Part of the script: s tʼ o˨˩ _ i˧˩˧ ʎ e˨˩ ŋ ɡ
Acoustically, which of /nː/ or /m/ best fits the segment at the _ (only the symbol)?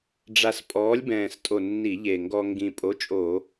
nː